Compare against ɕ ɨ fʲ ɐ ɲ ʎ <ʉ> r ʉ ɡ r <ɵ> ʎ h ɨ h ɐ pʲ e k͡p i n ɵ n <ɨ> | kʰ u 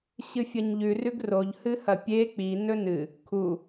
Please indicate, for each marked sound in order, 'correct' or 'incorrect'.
correct, incorrect: o, correct

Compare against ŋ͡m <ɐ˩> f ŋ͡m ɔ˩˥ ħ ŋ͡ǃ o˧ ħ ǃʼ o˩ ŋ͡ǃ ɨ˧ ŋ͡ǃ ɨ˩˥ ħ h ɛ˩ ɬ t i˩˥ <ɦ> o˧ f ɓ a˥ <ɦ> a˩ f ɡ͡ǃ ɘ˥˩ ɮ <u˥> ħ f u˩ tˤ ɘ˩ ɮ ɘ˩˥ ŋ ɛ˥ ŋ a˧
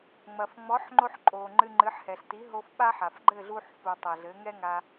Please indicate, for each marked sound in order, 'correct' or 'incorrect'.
correct, correct, incorrect: ħ, incorrect: u˧

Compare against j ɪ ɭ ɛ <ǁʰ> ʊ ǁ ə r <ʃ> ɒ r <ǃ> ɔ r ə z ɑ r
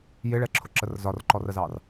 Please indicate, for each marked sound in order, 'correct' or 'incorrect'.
correct, incorrect: z, correct

